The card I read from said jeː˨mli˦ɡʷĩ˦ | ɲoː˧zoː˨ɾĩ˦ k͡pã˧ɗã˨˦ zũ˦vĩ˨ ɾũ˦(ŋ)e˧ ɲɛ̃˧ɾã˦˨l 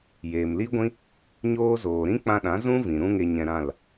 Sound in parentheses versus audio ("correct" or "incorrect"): correct